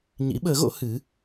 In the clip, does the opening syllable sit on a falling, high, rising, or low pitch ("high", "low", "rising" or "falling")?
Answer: rising